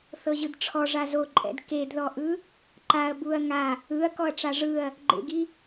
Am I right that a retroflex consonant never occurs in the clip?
no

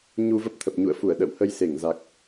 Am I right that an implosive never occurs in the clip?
no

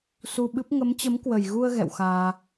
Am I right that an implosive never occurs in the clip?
no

